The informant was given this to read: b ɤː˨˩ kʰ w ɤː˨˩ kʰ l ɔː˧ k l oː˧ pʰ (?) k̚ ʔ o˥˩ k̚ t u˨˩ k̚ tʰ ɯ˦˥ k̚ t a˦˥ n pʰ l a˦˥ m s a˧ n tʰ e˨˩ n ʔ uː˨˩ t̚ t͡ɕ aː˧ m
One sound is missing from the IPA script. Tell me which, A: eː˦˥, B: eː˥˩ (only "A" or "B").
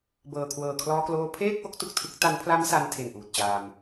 B